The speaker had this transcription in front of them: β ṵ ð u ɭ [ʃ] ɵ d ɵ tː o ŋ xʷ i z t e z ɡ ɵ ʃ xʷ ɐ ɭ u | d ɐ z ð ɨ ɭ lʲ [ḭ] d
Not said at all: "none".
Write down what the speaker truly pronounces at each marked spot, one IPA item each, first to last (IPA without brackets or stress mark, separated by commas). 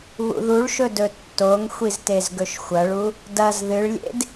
ʃ, ḛ